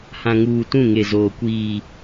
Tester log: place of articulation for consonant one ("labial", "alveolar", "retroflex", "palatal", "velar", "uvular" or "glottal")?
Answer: glottal